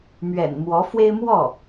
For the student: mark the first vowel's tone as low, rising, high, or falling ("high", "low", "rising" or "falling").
low